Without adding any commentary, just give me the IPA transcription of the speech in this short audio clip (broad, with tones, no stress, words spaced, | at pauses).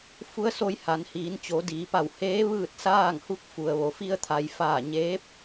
fu˧˥ə̯so˧jha˩˧nhiː˩˧n t͡ɕo˩˧diː˩˧pa˧˩w heː˧˥ ʋɯː˥˨t̚saː˥˨ŋhu˧˥k̚ fu˩ə̯ʋo˩fi˧ə̯ t̪ʰa˩jfaː˧˩ ɲeː˧˥p̚